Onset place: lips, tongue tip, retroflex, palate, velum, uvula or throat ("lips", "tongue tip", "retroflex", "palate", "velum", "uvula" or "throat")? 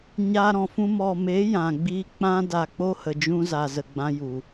palate